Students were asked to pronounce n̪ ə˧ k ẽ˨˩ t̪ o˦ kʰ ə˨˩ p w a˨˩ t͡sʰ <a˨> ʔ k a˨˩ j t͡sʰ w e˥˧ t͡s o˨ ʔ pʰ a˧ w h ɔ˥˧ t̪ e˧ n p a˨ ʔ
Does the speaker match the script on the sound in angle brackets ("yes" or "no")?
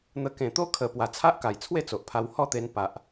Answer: no